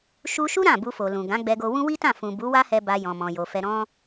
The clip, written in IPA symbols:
ʃ u˧ ʃ u˦ ɾ ã˦˨ b u˧ f o˨ l ũ˨ ɡ ã˨˦ ɡ͡b ɛ˧ ɡ o˧ w ũ˦ w i˦ t ã˦˨ f ũ˨ b u˨˦ w a˦ h ɛ˧ b a˧ j ɔ̃˧ m ɔ̃˧ j o˧ f ɛ˧ ɾ ɔ̃˦

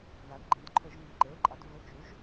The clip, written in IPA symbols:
ð a˩˧ d ɡ͡ǃ ĩ˩˧ d ǃʰ ɵ˧˩˧ ʒ ŋ ɨ˩˧˩ ǃ e˩˧˩ ǃʼ a˩˧ d v ɵ˩˧˩ t͡ʃ u˩˧ ʒ

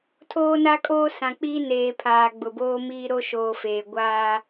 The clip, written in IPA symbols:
tʰ oː˦ n a˦ kʼ oː˦ s ã˨ k͡p iː˦ n eː˨ pʰ aː˨ ɡ͡b ʊ˨ b oː˦ m iː˦ ɾ o˦ ʃ oː˨ f eː˨ ɡʷ aː˦

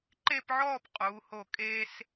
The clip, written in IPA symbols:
ǃ e˥˧ p ʕ ɔː˥˧ p qʼ uː˩˧ h o˧˩ kʼ e˧ s

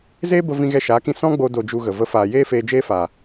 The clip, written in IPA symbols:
z eː˦ b ə˧ v ĩ˧ ɣ ɛ˧ ʃ aː˨˦ k ĩ˧ s ɔ̃˦ ɡ͡b o˧ d o˧ d͡ʒ u˧ ɣ ə˨ v ə˨˦ f aː˨ j eː˦ f eː˧ d͡ʒ eː˦ f aː˨

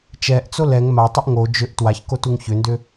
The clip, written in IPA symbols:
t͡ʃ ɛ ʔ t͡s o l ɛ ŋ m a tˤ u ʔ ŋ o d͡ʒ ʏ ʔ t w a ç k o t u ŋ ç ʏ n d ʏ

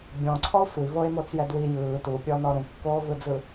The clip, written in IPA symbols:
bʲ ɔ̃ ǀʰ ɔ sʷ i v o e̯ m o t͡s j ɛ d w i j ɯː t u pʲ ɔ n ɔ ɾ ũ kː oː v ɯ d͡z ɯ

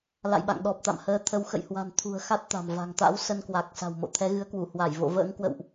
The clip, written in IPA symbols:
l a̰˧˨ j ɓ a̰˧˨ ŋ ɗ ɔ˨˩ p̚ t̪ a̰˧˨ m h əː˨˦ t̪ʰ ə˨˦ w x ə̰˧˨ j h w a̤˨˩ n t̪ʰ ṳ˨˩ ə̯ x a˦˥ t̚ t̪ a̤˨˩ m v a̤˨˩ ŋ t̪ a̰˧˥ w s ə˧ n k w a˨˩ k̚ s a̤˨˩ w m o̰˧˨ t̪ʰ ɛ˨˦ ɣ ɨ˨˦ ə̯ k w u˧˩ h w a˧˩ j v o̰˧˨ v ə̰ː˧˥ ŋ k w ə̰˧˨ w ʔ

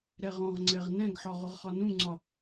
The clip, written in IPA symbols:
ɾ ɛ ʁ ɔ̃ ʁ ŋ͡ǀ ɛ ʁ n ɛ̃ ɡ ħ ɒ ʁ ʊ ʁ χ ɒ n ũ ŋ͡ǀ ɒ

